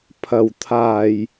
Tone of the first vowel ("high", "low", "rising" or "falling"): low